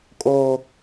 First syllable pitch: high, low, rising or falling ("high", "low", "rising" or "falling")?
high